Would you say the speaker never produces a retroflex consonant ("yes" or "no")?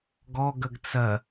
yes